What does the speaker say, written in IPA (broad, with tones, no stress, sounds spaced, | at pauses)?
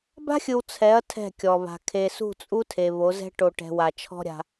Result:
b a̤˦ xʲ ɯ˨ w t͡sʰ ɛ˨˦ ɐ̯ tʰ ɛ̤˦˨ kʲ ɔ˨ β a̤˨ kʰ e˨ s ṳ˦˨ t͡sʼ u˦ tʰ e˨ β o˨˦ z ɛ̤˦ ʈ o˨ ʈ ɛ̤˨ w a˨ t͡ʃʰ ɔ̤˦ ɾʲ a̤˦